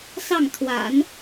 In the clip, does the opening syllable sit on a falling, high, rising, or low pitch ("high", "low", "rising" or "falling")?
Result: falling